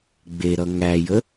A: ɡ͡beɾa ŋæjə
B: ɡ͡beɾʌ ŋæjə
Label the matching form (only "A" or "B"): B